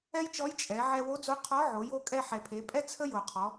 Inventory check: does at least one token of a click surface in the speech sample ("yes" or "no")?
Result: no